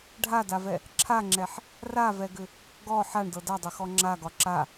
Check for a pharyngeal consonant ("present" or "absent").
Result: present